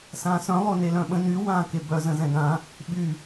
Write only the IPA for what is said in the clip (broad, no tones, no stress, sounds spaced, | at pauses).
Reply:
s ãː s œ̃ lˠ ʊː n e l œ̃ ɓ ə̃ n y w ãː k e b œ z ə̃ z ɛ̃ ɡ ã | ɓ y